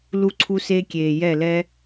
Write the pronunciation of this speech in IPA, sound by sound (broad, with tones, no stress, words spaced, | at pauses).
lu˧ǀʰu˧se˧kʲeː˨ jɛ˦˨lɛ˦